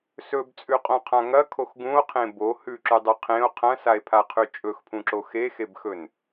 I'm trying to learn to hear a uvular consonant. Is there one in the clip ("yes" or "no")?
yes